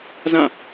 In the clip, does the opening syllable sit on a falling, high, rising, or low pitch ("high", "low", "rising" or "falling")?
falling